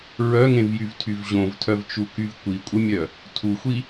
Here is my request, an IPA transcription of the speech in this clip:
ɹ œ ŋ ẽ v j y v tʰ y v ʑ õ v tʰ œ v t͡ʃ u k y v kʷ i kʷʼ ə mʲ œ | tʰ u xʷ i

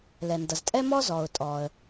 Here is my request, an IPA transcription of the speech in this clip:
l ɛ˩ n d ʌ˩ z tʼ ɛ˥ m ɔ˥ z ɔ˩ ʊ̯ tʼ ɔ˩ ə̯

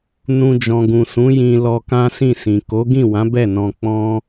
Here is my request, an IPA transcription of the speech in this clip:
n ũ˨ d͡ʒ ɔ̃˨ ɡ ũ˨ s ũ˨˦ j ĩ˧ l ɔ˧ k ã˦ s ĩ˦˨ s ĩ˨ k o˨˦ ɡ ĩ˦˨ w ã˨˦ b ɛ˦˨ n ɔ̃˧ k͡p ɔ̃˦

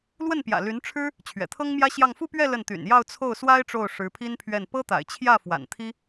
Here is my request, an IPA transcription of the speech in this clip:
l w ə˥˩ n p j ä̰˨˩ l y˧˥ n ʈ͡ʂʰ ɻ̩˥ | t͡ɕʰ ɥ ɛ̰˨˩ t̪ʰ ɤ˥ ŋ m j ä˥ ɕ j ɑ˥˧ ŋ f u˥˧ p ɥ ɛ˥˧ l ə˥˩ n t̪ y̰˨˩ n j ɑ˥˧ ʊ̯ t͡sʰ o˥˩ ʊ̯ s w a˥ ɪ̯ ʈ͡ʂ o˥˩ ʊ̯ ʂ ɻ̩˧˥ pʰ i˥ n pʰ ɥ ɛ˥˩ n p ɤ˥ t̪ a̰˨˩ ɪ̯ t͡ɕʰ j ä˥˩ f w a̰˨˩ n t̪ʰ i˥

